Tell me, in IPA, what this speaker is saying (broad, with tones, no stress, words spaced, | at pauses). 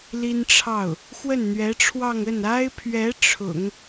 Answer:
li˥nʈ͡ʂʰɑ˥˩ʊ̯ | xwə˥˩nn̪ɥɛ˧˥ʈ͡ʂʰwɑ˥˧ŋ ə˥˩na˥ɪ̯pʰɥɛ˧˥ ʈ͡ʂʰʊ̰˨˩˦ŋ